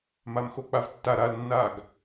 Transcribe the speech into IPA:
m a m x o k͡p a v tː a ɾ a l nː a ɡ

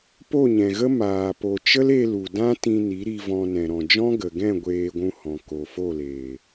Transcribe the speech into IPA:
p o˦˨ ɲ ɛ̃˨ ɣ ə˦ m aː˨ p o˨ t͡ʃ ə˦ l e˧ l u˨ d ã˦ t ĩ˧ n i˨˦ ɾ i˧ v ɔ̃˧ n ɛ̃˨ ɾ ɔ̃˨ d͡ʒ ɔ̃˦ ɡ ə˨ ɡ ɛ̃˦˨ ɡʷ eː˧ ɡʷ ũ˧ h ɔ̃˨ k o˨ f o˦˨ l eː˨

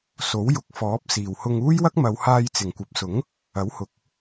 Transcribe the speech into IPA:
s o˨˥ w j ʊ˨˥ k̚ f ɔː˨˥ p̚ s iː˨˩ w h ʊ˧ ŋ uː˥ j w ɐ˥ k̚ m ɐ˨˧ w h aː˧ j t͡s ɪ˨˩ ŋ kʷ ɐ˨˥ p̚ s ʊ˨˥ ŋ | ɐ˨˥ w h ʊ˨˥ k̚

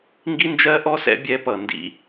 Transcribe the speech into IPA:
ŋ ɡ i˥ n d͡ʒ ɜ˧˥ ʔ ɔ˧˥ s ɛ̰˧ bʲ ɛ˧˥ p ʌ˩ n d ḭ˧

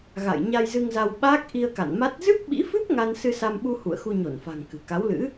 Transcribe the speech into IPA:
ɣ a̰˧˨ j ɲ a˧ j z ɨ˧ ŋ z a˧ w ɓ aː˦˥ k̚ ʔ i˧ ə̯ k a̰˧˨ n m a˦˥ t̚ z ɨ˦˥ p̚ ɓ ḭ˧˥ f ɨ˦˥ p̚ ŋ a˧ n s ɨ˧ s a˧ m ɓ u˧ h ṵ˧˨ ə̯ x u˧ ɲ o˧˩ n f a̤˨˩ ŋ k ɨ̤˨˩ k a˨˦ w l ɨ̰˧˥

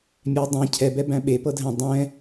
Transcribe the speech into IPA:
mʲ ɛ dˤ ɛ̃ cʰ ɛ b ɛ b æ̃ ɓ e p ɤ dʱ æ̃ dˤ ɛ̃

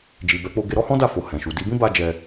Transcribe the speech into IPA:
d͡ʒ i˨ b ɛ˨˦ k͡p o˧ ɡ e˧ ɾ ɔ˦ h ɔ̃˦ d a˦˨ f o˨ h ɛ̃˨ ʃ u˨ d i˧ b ĩ˦ b a˧ d͡ʒ ɛ˧

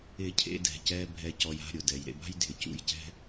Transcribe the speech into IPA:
ɪ˧ cʰ ḛ˧ d ɛ̤˨ c ɛ˧ bʱ ɛ˨ c ɔ˨ j a̤˦˨ ɾʲ ʊ˨ d ɛ˨ j ɾ ḛ˧ b a̤˦ j dʱ ɪ˨ c ṵ˧ j c ɛ̤˦

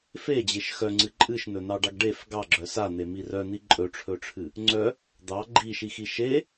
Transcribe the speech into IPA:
f e d͡ʑ e ʃ x œ ŋ͡ǀ ɨ ǃʼ ɨ ʃ n ɵ n ɑ ɖ ɑ ɡ ɖ e f ɡ ɑ ɡ͡ǁ œ s a n̪ e m i r œ n̪ i ǃʼ ɵ ʈ͡ʂʰ ɵ ʈ͡ʂʰ ɨ | ŋ͡ǀ œ | d̪ ɑ ɡ͡ǃ i ʃ i x i ʃ e

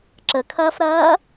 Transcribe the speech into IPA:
ǁ ə kʰ ɐː f ɾ ɐː

